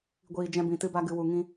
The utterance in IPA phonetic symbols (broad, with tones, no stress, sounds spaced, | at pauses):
ɡʷ iː˨ d͡ʒ ɛ̃˧ b ĩ˨ t ɨ˧ b a˧ ɡ ɨ˨ w u˨ ŋ ĩ˧